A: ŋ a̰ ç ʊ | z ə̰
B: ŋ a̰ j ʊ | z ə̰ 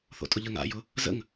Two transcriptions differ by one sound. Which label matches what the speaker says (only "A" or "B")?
B